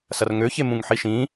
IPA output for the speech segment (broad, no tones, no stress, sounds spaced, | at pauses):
s ɐ r ŋ ø ç e m ũ ŋ ħ i ʃ ĩ